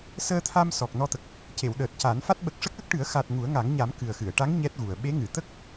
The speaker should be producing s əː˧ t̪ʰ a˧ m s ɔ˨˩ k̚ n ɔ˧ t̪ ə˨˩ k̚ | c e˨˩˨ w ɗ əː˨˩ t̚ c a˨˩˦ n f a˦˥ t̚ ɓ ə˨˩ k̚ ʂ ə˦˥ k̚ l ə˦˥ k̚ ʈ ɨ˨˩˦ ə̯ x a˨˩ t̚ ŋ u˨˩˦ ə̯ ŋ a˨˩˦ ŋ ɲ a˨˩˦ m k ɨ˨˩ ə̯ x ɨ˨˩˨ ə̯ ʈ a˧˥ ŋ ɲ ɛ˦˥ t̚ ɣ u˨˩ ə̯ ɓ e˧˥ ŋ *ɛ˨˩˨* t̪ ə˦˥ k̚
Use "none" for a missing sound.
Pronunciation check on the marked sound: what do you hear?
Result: ɨ˨˩˨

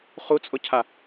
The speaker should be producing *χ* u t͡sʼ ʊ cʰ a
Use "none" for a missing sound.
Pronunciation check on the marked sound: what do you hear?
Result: χ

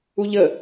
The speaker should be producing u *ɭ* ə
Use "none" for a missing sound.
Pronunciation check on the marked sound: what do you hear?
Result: ʎ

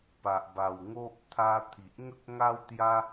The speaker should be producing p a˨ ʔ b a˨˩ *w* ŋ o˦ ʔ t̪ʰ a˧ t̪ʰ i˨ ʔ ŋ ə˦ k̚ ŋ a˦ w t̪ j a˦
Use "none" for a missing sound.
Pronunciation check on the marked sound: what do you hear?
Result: w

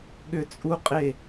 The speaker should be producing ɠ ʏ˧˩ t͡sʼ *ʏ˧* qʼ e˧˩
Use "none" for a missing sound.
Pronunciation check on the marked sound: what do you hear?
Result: u˧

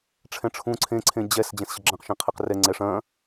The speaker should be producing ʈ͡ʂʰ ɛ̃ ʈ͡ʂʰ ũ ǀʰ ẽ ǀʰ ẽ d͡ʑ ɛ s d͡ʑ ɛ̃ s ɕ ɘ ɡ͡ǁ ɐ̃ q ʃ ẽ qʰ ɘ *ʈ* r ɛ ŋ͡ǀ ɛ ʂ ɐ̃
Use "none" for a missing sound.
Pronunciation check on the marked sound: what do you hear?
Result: q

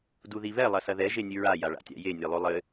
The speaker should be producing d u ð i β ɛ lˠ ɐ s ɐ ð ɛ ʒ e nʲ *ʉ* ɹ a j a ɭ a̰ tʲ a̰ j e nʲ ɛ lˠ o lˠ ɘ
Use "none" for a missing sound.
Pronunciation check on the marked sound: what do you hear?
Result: ɨ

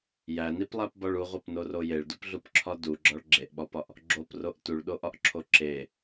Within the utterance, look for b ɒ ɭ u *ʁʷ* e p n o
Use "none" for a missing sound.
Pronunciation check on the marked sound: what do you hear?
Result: ʁʷ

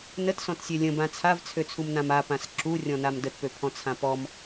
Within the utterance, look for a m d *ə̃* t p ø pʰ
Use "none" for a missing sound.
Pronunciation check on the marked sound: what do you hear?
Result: ə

